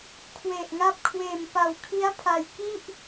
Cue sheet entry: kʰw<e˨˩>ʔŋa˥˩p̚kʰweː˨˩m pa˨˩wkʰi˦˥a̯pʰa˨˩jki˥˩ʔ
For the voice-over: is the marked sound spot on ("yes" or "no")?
yes